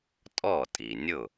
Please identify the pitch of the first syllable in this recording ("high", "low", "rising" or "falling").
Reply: falling